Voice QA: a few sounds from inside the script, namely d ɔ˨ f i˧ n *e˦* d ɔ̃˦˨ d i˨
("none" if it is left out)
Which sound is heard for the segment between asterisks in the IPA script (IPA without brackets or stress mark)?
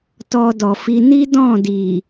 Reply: i˦